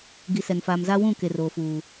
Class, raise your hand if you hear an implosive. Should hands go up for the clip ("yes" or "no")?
no